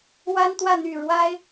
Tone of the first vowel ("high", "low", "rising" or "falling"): high